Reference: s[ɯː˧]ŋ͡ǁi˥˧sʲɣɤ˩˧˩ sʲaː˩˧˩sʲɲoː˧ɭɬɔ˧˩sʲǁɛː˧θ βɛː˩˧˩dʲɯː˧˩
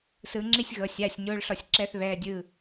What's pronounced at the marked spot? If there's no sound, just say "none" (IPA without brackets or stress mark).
ɯː˧